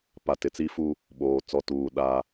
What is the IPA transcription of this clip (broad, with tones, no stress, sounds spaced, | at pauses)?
p a˨ t ɪ˨ t͡s i˦ f u˦ | ɓ oː˨ t͡s ɔ˦ t uː˨ ɗ a˦